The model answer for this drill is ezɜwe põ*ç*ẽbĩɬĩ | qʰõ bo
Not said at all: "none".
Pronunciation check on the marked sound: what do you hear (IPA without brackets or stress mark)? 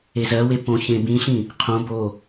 ç